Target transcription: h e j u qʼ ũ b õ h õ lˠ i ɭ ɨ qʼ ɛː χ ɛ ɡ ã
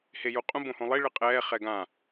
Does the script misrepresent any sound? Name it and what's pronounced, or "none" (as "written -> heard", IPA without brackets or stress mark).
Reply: none